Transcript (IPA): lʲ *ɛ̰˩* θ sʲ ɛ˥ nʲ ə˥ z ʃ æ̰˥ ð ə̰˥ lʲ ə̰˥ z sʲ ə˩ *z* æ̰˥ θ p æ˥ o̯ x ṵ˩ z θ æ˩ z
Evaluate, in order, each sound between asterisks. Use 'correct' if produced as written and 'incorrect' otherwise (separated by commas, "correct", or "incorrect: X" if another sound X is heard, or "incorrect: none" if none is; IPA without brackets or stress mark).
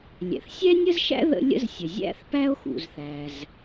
correct, incorrect: zʲ